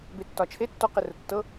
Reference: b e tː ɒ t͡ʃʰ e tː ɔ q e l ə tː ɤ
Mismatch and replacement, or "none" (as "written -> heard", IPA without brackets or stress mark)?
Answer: l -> r